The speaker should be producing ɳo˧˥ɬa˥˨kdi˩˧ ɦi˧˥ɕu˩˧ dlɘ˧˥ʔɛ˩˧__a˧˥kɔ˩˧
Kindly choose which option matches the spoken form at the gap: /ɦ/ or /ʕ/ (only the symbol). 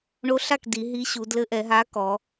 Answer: ɦ